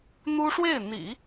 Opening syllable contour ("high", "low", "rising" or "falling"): high